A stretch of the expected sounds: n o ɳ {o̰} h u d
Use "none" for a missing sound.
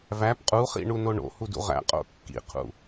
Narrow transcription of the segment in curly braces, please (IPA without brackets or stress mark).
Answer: o̰